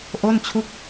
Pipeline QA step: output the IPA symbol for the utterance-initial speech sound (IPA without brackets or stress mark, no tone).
ʔ